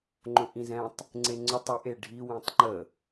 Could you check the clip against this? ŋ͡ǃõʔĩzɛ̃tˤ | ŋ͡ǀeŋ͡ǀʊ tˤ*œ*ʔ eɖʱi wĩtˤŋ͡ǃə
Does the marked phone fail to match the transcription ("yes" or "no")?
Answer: yes